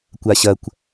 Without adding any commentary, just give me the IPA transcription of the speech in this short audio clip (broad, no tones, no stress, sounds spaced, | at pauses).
kʷ a ɕ ɐ kʷ